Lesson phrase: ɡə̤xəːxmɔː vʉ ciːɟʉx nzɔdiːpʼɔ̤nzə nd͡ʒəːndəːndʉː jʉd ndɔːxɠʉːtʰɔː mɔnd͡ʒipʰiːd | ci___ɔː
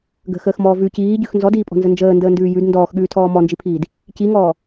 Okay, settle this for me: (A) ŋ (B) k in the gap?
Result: A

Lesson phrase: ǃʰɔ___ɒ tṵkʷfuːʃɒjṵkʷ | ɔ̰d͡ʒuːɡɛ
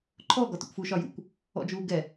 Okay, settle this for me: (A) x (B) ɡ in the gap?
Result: B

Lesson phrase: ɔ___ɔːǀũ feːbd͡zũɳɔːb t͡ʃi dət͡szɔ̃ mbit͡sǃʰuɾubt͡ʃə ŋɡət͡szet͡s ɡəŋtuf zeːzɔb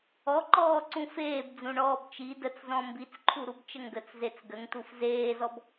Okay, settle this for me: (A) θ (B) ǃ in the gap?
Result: B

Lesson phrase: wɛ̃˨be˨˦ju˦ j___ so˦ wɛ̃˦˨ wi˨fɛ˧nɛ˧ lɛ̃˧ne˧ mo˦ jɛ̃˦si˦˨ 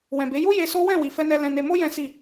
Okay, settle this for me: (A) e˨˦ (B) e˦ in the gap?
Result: B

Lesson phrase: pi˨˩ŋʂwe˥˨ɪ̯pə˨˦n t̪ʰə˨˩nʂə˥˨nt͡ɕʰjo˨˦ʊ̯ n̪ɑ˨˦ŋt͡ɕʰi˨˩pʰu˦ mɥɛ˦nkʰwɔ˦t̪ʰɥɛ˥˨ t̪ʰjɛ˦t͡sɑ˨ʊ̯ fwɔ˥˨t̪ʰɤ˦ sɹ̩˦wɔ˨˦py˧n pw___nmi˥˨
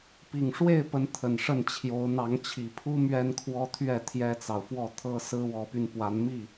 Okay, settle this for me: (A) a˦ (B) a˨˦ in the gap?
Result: B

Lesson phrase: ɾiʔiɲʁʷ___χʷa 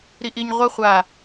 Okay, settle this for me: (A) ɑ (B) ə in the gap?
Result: B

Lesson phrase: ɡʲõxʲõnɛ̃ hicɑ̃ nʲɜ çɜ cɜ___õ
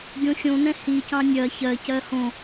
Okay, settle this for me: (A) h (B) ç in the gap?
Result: A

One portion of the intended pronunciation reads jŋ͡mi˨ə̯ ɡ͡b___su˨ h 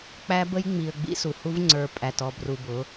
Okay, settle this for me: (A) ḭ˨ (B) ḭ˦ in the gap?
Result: B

